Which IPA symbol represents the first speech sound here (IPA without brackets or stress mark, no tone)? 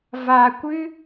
v